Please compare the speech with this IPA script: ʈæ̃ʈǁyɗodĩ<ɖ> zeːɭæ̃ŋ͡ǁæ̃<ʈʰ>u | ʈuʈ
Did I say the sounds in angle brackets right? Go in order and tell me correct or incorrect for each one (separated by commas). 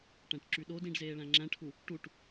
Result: correct, correct